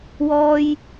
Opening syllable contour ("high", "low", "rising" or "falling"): high